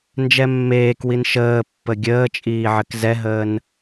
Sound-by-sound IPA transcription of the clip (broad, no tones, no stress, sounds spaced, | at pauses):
n d͡ʒ ɛ mː eː k w i n ʃ əː pː ə ɡʲ əː t͡ʃʼ iː ʕ ɘ k z ɛ ɦ əː n